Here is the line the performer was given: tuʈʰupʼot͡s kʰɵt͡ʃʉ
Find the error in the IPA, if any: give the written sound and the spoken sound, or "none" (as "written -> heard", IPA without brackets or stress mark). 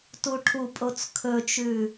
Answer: none